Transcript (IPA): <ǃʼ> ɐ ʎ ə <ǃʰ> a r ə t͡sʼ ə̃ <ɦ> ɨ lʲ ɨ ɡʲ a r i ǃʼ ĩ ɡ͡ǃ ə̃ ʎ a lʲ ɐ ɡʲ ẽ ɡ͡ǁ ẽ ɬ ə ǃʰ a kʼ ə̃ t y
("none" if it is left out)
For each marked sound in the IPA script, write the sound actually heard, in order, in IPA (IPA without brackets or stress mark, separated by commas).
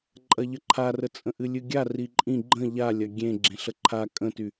ǃʼ, ǃʰ, ʔ